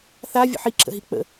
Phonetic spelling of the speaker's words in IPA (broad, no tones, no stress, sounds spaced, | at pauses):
θ a vʲ ə̰ ħ i ǁ ə̰ ɦ i k͡p ə̰